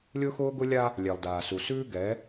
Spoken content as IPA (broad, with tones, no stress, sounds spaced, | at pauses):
lʲ ʊː˦ x ʊː˦ ɡ ʊ˦ lʲ a˦ | lʲ ɛ˨ lˠ d aː˨ s u˨ s ʉː˦ ɡ ɛ˨˦